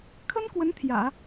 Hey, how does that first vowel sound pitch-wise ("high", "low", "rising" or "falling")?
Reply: high